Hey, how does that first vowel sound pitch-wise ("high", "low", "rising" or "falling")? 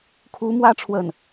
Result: rising